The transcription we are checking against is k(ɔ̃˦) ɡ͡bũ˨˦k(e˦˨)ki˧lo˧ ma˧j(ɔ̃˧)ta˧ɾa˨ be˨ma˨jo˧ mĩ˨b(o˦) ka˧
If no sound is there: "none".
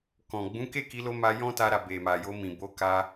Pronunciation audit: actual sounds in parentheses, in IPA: ɔ̃˨, e˦˨, ɔ̃˦, o˨˦

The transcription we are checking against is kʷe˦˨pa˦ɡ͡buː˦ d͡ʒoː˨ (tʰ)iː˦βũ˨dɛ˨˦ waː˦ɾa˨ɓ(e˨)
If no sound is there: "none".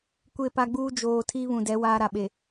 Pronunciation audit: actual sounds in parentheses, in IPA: tʰ, e˨

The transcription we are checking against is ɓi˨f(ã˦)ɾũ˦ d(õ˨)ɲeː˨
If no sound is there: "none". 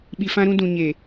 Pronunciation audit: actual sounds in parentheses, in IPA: ã˦, ũ˨

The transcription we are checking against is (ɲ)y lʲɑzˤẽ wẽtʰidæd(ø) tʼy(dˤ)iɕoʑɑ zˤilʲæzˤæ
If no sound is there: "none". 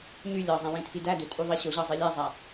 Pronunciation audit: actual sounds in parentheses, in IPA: ɲ, ø, ðˤ

